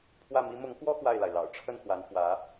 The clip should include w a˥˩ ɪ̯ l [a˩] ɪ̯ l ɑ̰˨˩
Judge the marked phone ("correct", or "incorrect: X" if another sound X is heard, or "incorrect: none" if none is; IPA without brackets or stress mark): correct